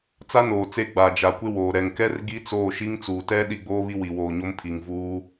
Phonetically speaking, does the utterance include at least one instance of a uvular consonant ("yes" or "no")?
no